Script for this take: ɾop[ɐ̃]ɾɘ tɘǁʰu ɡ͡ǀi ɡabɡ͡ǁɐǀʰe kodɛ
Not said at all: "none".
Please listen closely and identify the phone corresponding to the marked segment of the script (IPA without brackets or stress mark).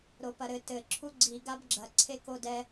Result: ɐ